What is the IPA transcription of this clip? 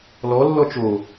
l ɔ lː ɔ t͡ʃ o

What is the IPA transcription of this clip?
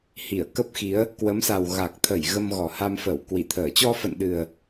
h i˧˩ ə̯ k ə˦˥ p̚ x i˨˦ ə̯ | k w ə˨˦ m s a˨˩ w ɣ a˨˩ k̚ t̪ʰ ə˧˩ j ɣ ə˧ m ɣ ɔ˨˩ h a˧ m f ə˧˩ w k w i˧˩ t̪ʰ əː˧˩ t͡ɕ ɔ˧ f ə̰˧˨ n ɗ ɨ˨˩ ə̯

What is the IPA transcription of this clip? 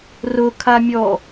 r ʊ kʰ a mʲ ɔ

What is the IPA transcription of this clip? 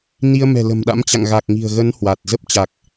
n i˧ ə̯ m ɛ̤˨˩ l ə̤˨˩ m ɗ a̰˧˥ m t͡ɕ a̰˧˨ ŋ ɣ a˨˩ k̚ ŋ i̤˨˩ ə̯ ɣ ə˨˦ n h w a˨˩ t̚ z ə˦˥ p̚ t͡ɕ a˨˩ k̚

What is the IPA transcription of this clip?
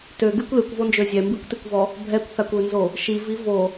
t ø ɡ y kʷ l y kʷ v o n d͡ʒ ø zʲ ɛ m b i kʷ t i kʷ v ɔ | bʱ ɛ kʷ θ a kʷ ø n z o | ʃ i v i v o

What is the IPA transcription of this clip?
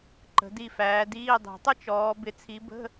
ǃ ə̤˨˦ d i˦˨ f æː˨˦ d iː˧˥˧ dˤ i̤˨˩˦ tˤ ə˥ t͡ʃ ɔː˨˦ b ɪ˨˦ t͡sʰ i˨˦ b ə̤˧˥˧

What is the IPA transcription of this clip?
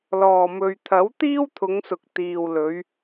l ɔː˨˩ m ɵ˨ ɥ t̪ʰ ɐ˨˥ w t̪ iː˥ w t̪ʰ ʊ˨˧ ŋ s ʊ˨ k̚ t̪ iː˨ w l ɵ˨˧ ɥ

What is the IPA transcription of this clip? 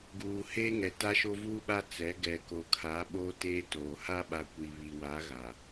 ɡ uː˨ h eː˦ ŋ ɛ˨ t a˦ ʃ o˦ v uː˦ ɓ a˦ t͡s ɛ˨˦ ɡ ɛ˨ k o˨ kʰ a˨˦ ɓ oː˦ t eː˦ t oː˨ h a˦ ɓ a˨ kʷ i˨ β i˨ w a˨˦ ɣ a˨

